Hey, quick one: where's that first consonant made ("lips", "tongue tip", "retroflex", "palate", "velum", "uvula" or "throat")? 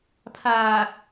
lips